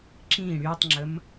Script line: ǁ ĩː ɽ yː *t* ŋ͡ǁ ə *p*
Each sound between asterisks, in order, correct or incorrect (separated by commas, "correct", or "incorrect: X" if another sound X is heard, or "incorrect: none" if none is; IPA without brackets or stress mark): incorrect: tˤ, incorrect: m